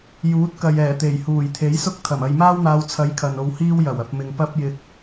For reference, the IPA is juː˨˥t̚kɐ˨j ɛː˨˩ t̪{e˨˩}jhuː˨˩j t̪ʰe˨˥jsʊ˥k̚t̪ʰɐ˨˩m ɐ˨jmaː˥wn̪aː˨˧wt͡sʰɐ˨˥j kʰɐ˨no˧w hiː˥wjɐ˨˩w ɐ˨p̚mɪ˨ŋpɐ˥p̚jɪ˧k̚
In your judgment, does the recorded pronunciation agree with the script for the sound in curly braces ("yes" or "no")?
yes